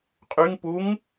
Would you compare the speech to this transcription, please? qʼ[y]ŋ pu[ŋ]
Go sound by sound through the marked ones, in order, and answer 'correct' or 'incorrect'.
correct, correct

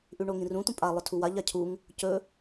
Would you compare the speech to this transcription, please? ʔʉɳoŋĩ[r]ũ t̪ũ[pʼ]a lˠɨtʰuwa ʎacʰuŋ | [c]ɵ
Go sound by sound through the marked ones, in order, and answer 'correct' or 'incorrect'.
correct, correct, correct

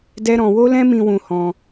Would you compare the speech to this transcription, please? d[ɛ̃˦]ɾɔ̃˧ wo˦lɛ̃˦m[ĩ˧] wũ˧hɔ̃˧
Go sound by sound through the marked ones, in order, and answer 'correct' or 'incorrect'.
incorrect, correct

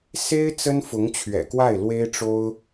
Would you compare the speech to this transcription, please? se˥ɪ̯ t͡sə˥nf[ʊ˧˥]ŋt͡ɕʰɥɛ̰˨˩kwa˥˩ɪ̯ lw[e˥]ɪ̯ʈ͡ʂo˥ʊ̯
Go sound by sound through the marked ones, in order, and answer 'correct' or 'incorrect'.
correct, correct

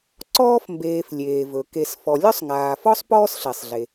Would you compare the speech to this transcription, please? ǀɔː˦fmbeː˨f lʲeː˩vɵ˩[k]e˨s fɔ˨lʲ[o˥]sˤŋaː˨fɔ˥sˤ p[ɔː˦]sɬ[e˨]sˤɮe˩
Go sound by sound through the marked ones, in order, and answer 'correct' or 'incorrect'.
correct, incorrect, correct, incorrect

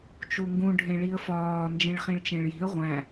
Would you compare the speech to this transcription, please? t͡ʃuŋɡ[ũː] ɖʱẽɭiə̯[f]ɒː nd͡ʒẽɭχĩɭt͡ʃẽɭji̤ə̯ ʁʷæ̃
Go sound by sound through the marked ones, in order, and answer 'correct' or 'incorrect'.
incorrect, correct

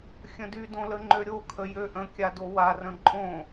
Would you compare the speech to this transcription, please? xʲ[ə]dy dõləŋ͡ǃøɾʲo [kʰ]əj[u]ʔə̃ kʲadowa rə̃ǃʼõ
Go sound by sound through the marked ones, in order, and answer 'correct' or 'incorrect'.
incorrect, correct, incorrect

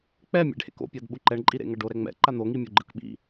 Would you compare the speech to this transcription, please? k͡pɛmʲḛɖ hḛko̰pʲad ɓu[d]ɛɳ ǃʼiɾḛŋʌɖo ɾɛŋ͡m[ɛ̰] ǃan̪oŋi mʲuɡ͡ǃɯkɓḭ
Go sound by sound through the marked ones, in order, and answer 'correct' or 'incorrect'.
incorrect, correct

